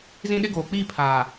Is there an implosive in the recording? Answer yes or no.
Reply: yes